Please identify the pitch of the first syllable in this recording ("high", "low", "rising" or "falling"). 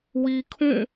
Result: low